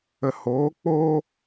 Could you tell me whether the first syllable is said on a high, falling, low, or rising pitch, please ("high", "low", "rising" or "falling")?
low